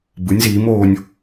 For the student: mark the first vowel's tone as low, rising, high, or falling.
rising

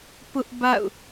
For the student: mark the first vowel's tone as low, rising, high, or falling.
high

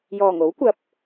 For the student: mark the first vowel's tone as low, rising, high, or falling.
low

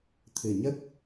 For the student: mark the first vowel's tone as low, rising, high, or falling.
low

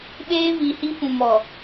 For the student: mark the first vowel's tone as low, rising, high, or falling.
high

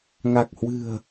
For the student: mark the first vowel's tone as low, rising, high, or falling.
low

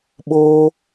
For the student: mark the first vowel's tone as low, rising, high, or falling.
high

